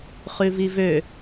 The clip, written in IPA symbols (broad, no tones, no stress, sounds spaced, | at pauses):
χ ʉ v i v ø